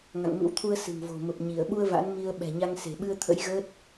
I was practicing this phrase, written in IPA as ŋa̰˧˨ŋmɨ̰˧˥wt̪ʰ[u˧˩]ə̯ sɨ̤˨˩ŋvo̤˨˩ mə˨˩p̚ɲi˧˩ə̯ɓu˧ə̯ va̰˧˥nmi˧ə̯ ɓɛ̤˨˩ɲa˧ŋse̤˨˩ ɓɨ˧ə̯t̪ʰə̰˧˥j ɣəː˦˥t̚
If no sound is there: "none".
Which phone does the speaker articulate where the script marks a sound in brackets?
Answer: u˧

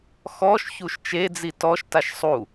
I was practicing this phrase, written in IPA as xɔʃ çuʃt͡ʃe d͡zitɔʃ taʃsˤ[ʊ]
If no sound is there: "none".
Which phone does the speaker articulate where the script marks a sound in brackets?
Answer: u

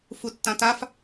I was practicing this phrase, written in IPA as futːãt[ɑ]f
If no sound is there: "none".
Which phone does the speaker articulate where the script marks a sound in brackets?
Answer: a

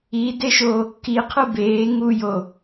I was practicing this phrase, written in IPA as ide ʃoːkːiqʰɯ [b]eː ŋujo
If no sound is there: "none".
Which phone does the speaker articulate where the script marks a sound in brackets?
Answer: b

